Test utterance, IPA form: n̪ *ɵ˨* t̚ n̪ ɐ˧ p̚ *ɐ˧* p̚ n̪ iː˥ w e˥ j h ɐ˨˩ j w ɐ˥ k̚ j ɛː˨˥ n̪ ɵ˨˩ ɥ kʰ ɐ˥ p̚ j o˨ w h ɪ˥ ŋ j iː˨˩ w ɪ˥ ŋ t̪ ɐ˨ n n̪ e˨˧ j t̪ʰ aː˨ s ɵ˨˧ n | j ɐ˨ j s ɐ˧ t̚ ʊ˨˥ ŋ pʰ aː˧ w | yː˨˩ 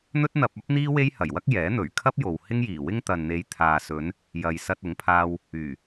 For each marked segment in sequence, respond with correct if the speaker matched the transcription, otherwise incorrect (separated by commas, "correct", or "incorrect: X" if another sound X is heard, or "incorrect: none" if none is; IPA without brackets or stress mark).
incorrect: ɵ˥, incorrect: ɐ˥